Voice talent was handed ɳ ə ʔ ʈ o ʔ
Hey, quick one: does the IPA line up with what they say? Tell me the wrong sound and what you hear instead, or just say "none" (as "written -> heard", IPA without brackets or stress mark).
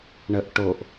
none